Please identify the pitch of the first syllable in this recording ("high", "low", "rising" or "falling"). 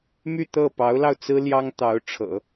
falling